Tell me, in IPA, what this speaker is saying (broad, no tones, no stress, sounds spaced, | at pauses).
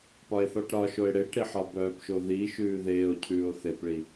p ɒ e̯ θ ɒ ʈ ɾ ɒ ʃ o e̯ ɽ e ʈ ɾ i ħ ɒ b œː p ʃ o ð i ʃ ʉː ð eː o̯ cʰ ʉː o̯ θ e p ɭ i